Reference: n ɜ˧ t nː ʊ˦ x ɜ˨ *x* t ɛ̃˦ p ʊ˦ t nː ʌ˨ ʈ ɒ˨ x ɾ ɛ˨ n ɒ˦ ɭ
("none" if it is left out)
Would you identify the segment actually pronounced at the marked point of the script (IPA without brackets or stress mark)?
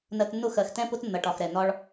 x